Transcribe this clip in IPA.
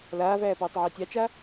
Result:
l aː v æː p ɤː tˤ ʕ æ tʲ ɑ t͡ʃ a

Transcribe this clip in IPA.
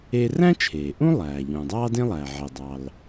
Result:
e˥ r æ̃˥ t͡ʃʰ eː˩ ʔ ũ˥ lˠ æː˩ ʎ ũː˩ dˤ ɑː˥ d ẽ˥ lˠ æː˩ ʕ e˩ dˤ ɑ˩ l

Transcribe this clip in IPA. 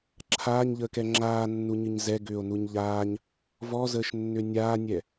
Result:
ǁʰ aː ɲ ʎ əː k ɛ ŋ͡ǁ aː nː u ɲ ɨ ɲ z ɛ ɡ ʏː o̯ n u ɲ ʎ aː ɲ | v ɔ z əː ʃ nː ʏ nʲ aː nʲ ɛ

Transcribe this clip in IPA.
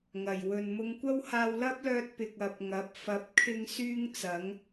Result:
ŋ ɐ˨˩ j w ɵ˨ n m ʊ˧ ŋ kʷ ɐ˥ w h aː˧ w l ɐ˥ p̚ l œː˧ t̚ p ɪ˨ k̚ ɐ˨ p̚ ŋ ɐ˨˥ p̚ f ɐ˨˥ p̚ kʰ ɪ˥ ŋ s yː˥ ŋ t͡s ɐ˨˥ ŋ

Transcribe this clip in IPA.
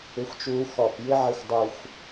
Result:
ɪ˧ xʷ t͡ʃ uː˧ x ɔ˧˩ p j ɪ˥ ʕ ɪ˥˧ xʷ dˤ u˧ xʷ

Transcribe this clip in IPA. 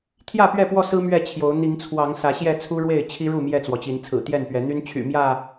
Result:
t̪ʰ j ä˥˨ p ɥ ɛ˥˨ p w ɔ˥˨ s ɹ̩˦ m ɥ ɛ˥˨ t͡ɕʰ j o˨˦ ʊ̯ n̪ i˨˦ ŋ t͡sʰ w ɑ˨˦ ŋ s ä˨˦ ɕ j ɛ˥˨ t͡sʰ u˦ ɻ w e˥˨ ɪ̯ t͡ɕʰ i˦ ɻ u˥˨ m j ɛ˥˨ t͡s w ɔ˩ t͡ɕ i˨˦ n t͡sʰ ɹ̩˨˩ t̪ j ɛ˥˨ n p ɥ ɛ˨˦ n̪ y˦ n t͡ɕʰ y̰˨˩ m j ä˥˨

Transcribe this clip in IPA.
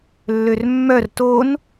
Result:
lː ø r mː œ r t o n

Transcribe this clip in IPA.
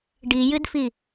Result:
ɖ i j ɨ d f i

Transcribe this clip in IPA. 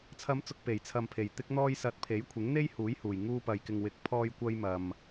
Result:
t͡sʰ ɐ˨˧ m t͡s ʊ˨ k̚ p e˨˩ j t͡sʰ ɐ˨ m pʰ e˨˩ j t̪ ɪ˧ k̚ n̪ ɔː˧ j s ɐ˨˥ t̚ pʰ e˨˥ j kʷʰ ɪ˨˥ ŋ n̪ e˥ j h uː˨˥ j h uː˨˩ j ŋ uː˧ p ɐ˨ j k ɪ˨ ŋ w ɪ˨˥ k̚ pʰ ɔː˧ j kʷ ɐ˧ j m ɐ˨ m

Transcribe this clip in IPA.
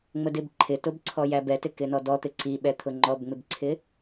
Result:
ŋ͡m ə d ɪ b ǃʰ ɪ t ʊ b ǀʰ ɔ j æ b ɛ t ɪ k ɪ n ɔ d ɔ t̪ ɪ ǀ i ɓ ɛ t̪ʰ ʊ ŋ͡ǃ ɔ b ŋ͡m ɪ b ǀʰ ɪ

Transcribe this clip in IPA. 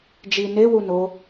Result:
d͡ʒ i n e w u n o

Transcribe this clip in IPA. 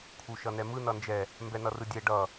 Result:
kʰ u ʃ ʌ n ɛ m ɯ n ʌ n d͡ʒ ɛ | m b ɛ n ʌ r ɯ dʲ ɛ ɖ ʌ

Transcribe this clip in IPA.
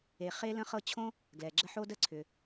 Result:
e˨ χ e˥ l ə̃˦ χ ɤ˦ t͡ɕʰ õ˥ | ɡ l ɛ˩ ɡ͡ǁ ə˦ ħ o˥ d ə˥ ǀʰ ʏ˩

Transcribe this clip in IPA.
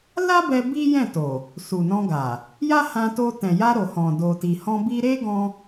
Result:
l a˦ b ɛ˧ b i˦ j ɛ̃˦˨ t o˨ | s u˨ n ɔ̃˧ ɡ a˨ | j a˦ h ã˧ t o˧ t ɛ̃˨ j a˧ ɾ o˨ h ɔ̃˨ d o˨ t i˨ h ɔ̃˧ b i˧ ɾ e˦ ɡ ɔ̃˧

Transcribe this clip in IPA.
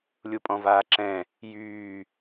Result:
lʲ u pʼ ɔ̃ v aː ǁ ɛ̃ | j yː

